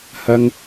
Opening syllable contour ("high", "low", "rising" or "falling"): high